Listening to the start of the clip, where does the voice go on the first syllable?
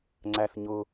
low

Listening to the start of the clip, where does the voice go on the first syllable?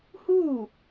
falling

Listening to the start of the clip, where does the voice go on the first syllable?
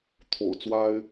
low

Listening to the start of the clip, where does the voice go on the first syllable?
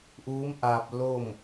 rising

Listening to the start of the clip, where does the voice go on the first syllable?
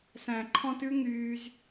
low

